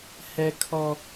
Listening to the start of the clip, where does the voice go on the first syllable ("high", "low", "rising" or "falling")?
high